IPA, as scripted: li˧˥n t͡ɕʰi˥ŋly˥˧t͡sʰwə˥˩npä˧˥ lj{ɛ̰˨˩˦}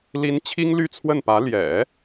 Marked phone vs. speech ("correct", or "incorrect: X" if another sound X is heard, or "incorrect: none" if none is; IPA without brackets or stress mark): correct